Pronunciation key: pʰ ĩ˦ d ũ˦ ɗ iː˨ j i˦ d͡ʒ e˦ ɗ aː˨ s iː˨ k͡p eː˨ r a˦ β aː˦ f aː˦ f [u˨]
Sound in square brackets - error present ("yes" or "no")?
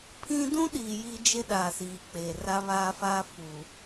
no